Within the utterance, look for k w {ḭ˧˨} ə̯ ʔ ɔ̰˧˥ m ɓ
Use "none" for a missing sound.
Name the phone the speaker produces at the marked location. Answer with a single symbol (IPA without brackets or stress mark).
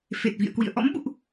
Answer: ḭ˧˨